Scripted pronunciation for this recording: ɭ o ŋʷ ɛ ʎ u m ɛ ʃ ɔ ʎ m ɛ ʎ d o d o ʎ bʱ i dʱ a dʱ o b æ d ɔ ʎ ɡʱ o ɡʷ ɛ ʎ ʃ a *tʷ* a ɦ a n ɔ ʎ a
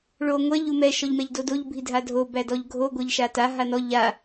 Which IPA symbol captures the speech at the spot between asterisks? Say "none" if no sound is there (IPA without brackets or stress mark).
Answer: t